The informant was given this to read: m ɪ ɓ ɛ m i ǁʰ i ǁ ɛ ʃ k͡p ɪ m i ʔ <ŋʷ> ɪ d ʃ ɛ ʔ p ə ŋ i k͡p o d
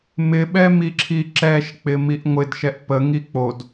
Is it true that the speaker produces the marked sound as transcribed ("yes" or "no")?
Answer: yes